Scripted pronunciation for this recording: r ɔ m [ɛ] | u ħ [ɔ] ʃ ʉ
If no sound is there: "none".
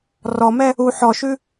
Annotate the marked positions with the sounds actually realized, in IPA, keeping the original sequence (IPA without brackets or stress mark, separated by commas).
ɛ, ɔ